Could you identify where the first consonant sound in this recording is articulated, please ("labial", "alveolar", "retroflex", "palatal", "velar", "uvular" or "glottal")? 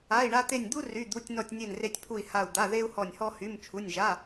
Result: retroflex